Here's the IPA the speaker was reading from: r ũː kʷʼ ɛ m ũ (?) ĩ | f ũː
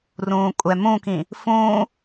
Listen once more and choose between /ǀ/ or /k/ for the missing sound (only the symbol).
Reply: k